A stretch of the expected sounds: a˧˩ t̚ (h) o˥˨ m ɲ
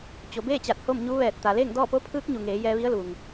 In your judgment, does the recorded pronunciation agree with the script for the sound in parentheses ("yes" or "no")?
yes